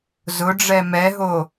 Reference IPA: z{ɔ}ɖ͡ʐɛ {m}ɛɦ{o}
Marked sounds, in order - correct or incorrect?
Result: incorrect, correct, correct

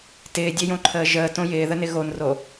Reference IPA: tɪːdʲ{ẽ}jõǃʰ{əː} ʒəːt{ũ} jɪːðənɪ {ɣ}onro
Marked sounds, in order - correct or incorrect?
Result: incorrect, correct, incorrect, correct

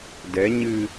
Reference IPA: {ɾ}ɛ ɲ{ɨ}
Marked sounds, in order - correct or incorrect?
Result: incorrect, correct

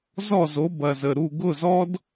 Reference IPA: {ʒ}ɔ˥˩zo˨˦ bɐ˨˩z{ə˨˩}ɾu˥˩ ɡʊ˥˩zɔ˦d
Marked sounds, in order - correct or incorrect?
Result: incorrect, correct

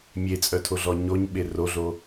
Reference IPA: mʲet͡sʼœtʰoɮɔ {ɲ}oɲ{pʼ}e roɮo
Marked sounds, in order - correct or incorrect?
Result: correct, incorrect

